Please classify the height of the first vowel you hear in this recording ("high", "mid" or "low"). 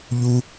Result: high